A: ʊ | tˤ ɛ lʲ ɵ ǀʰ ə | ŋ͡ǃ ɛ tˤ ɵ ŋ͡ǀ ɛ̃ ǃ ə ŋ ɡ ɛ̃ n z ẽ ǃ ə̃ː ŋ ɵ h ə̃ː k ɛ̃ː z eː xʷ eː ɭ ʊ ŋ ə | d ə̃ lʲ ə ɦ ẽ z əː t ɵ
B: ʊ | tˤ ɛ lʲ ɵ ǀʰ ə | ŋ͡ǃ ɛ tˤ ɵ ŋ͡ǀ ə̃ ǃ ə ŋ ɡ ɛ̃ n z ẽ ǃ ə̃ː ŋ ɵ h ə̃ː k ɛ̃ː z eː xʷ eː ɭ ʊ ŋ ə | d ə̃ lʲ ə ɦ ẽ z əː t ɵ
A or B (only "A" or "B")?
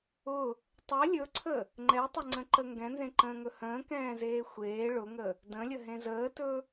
B